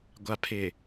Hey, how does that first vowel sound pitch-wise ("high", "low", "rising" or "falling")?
low